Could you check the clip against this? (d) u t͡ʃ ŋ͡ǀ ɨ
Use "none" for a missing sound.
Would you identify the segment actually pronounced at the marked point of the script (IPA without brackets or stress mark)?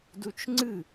d